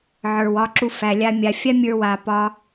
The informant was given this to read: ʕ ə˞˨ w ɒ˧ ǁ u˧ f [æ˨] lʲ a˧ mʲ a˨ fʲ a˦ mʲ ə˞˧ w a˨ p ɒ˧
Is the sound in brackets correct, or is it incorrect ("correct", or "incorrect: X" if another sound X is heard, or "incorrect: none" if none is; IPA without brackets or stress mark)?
correct